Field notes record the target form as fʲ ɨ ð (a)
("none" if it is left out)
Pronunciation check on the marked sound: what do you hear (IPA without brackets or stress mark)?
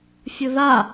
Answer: a